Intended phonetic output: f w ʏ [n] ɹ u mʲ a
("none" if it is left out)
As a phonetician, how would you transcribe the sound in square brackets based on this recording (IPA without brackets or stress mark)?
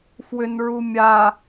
n